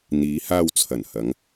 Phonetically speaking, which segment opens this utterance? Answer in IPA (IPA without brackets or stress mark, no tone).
n̪